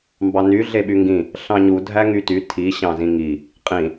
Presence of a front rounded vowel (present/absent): present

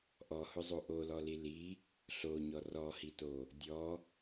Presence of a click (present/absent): absent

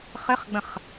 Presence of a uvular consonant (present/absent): present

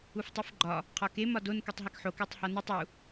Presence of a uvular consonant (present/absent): present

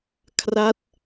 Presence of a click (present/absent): absent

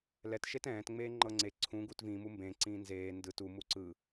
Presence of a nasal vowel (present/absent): present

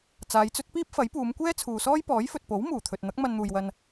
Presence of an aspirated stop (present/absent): present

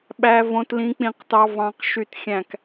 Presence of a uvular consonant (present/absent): present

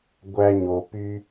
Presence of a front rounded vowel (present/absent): present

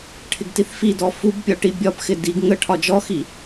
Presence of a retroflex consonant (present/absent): present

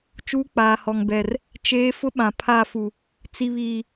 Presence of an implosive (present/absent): present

